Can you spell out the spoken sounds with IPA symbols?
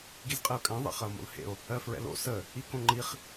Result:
ɡizqʼɛo̯kʼɛ̃ ðˤḛχɐo̯mo̰lhḛo̯ | ɜfɹɛ̰lo̰ sə | ikõŋ͡ǃiχ

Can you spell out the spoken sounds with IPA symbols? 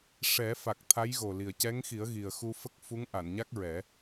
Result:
ʂɛ˨˩˦fa˨˩k̚ t̪ʰa˧˥jɣo˨˩li˨˩ə̯ cɛ˧˥ŋxi˨˩˦ə̯ɣi˨˩ə̯ xu˧fə˦˥k̚ fu˧˥ŋʔa˨˩˨nɲa˦˥k̚ɹɛ˨˩˦

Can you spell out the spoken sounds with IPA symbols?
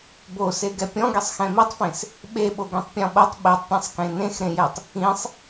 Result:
boseɡɛ pʲɔ̃ɡesˤ xɛ̃mitˤfẽs | ɓeɓo ɡẽtˤpʲɔ̃ɓotˤ ɓetˤpʲɛ̃sˤ kẽnẽxɾẽjɛtˤ | ĩsˤ

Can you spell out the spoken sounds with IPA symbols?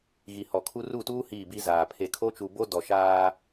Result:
ɣi˨hɔ˨kʰu˦ ru˦˨tuː˦ hiː˦˨bi˦ zaː˨ pʰe˨ kʰo˦t͡ʃu˨bo˦ dɔ˨ʃaː˦

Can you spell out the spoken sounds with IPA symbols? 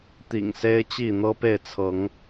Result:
t̪ḭ˨˩ŋse˦ɪ̯ t͡ɕi˥˨n̪ɤ˦pe˥˨ɪ̯t͡sʰɤ˨˦ŋ

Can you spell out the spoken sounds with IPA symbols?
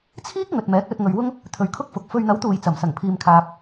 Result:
t͡sʰiː˥k̚ ŋɵ˨t̚mɛː˨˥k̚lɵ˧t̚ ŋɵ˨ɥwʊ˥ŋ | t̪ʰɵ˨ɥkʰʊ˥k̚fʊ˨˥k̚ fɵ˨ɥn̪ɐ˨˥wt̪uː˨˩j t͡sɐ˨˩msɐ˨˩ŋpʰiː˨mkʰaː˨p̚

